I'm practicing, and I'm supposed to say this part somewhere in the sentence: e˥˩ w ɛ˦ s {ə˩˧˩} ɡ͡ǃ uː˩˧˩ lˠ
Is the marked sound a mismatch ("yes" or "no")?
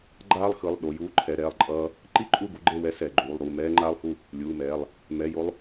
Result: yes